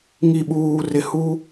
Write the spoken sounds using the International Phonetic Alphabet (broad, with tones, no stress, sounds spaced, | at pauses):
ŋ i˨ ɓ uː˨ r ɪ˨ h u˦